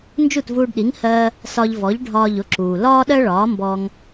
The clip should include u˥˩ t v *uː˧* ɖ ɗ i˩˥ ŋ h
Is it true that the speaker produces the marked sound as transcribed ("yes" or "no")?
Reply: yes